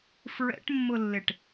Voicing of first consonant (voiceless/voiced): voiceless